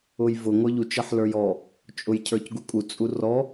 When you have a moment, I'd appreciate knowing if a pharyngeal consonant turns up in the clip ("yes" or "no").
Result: yes